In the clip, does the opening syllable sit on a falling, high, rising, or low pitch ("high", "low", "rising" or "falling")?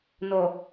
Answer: low